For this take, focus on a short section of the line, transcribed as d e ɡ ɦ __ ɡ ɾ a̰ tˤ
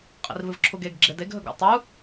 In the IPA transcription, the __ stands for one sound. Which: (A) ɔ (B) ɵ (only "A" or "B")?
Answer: B